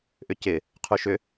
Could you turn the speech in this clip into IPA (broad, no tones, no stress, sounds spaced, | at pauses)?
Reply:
ʔ ʏ c ɪ | qʰ u ʃ ʏ